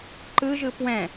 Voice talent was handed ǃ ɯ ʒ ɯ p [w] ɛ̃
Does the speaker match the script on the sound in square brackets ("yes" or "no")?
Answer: yes